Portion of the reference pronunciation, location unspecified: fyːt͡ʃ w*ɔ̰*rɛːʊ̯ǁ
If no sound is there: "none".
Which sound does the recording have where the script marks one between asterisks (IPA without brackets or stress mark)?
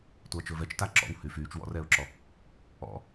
ɔ̰